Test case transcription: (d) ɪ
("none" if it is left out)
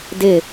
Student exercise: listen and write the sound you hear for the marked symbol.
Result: d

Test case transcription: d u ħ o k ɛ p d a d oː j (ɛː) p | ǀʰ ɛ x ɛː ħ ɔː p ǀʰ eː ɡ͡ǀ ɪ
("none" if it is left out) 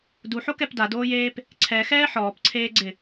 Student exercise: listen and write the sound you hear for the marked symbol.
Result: eː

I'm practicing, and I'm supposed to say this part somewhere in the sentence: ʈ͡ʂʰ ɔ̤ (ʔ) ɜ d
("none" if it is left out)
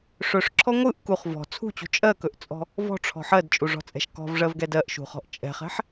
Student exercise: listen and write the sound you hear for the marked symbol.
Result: ħ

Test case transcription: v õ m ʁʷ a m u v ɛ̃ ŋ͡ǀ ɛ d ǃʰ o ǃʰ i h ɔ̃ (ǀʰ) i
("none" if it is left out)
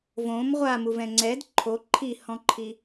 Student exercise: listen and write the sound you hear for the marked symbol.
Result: ǃʰ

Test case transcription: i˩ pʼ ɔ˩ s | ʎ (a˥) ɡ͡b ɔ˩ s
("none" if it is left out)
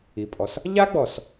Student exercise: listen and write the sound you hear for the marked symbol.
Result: a˥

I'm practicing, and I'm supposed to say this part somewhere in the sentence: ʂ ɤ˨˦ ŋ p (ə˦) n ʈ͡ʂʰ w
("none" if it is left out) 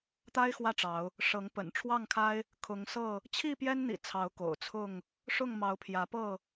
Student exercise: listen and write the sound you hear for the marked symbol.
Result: ə̰˨˩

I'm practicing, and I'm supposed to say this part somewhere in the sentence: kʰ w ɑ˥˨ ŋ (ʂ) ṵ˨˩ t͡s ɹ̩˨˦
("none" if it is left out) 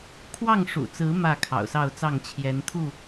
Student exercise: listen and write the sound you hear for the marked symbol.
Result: ʂ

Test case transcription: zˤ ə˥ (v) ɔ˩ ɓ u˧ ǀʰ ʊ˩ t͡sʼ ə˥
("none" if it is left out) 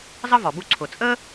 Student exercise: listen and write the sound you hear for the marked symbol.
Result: v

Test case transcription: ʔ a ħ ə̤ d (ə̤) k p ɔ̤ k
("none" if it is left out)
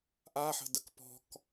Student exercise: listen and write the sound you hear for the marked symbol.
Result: ə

